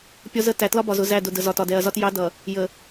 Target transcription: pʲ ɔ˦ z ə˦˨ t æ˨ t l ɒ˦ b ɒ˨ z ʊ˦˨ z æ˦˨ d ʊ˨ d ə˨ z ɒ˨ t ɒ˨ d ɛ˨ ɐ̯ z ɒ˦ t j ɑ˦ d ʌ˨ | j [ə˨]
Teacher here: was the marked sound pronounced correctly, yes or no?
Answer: yes